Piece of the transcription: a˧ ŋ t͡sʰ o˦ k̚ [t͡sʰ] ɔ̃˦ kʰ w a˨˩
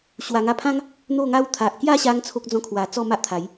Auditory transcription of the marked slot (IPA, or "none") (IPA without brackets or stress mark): d͡z